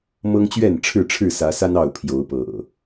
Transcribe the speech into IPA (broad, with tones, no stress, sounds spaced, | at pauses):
m ɤ˦ ŋ t͡ɕ ɥ ɛ˥˨ n ʈ͡ʂʰ ɻ̩˥˨ ʈ͡ʂʰ ɻ̩˥˨ s ä˨˦ s a˦ n ɑ˥˨ ʊ̯ pʰ j o˨˦ ʊ̯ p ɤ̰˨˩